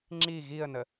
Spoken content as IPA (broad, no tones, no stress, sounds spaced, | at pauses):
ŋ͡ǁ i ɣ i ə̯ n ə